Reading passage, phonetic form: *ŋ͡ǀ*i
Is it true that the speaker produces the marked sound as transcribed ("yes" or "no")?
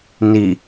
no